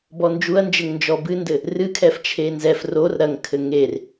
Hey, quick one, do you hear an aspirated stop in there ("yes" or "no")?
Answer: yes